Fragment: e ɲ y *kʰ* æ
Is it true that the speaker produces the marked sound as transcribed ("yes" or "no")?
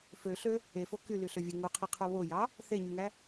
no